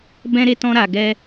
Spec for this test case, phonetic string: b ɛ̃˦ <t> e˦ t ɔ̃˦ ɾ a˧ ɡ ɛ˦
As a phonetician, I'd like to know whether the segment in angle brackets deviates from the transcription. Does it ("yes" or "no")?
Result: yes